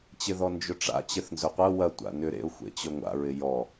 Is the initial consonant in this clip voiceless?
yes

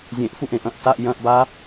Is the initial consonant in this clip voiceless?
no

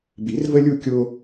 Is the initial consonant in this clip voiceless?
no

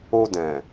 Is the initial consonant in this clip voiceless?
no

